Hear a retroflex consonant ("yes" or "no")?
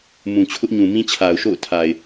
no